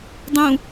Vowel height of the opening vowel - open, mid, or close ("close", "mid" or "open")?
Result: close